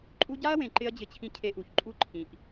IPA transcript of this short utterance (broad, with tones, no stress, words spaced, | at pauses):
ǃʼu˧ɟa˦ɐ̯wẽ˨ ǃɪ˦ɐ̯d͡ʑɪ˧t͡ɕʰĩ˧ cʰe˧ʔu˨çǃʼu˦ ǃʰĩ˨ʔ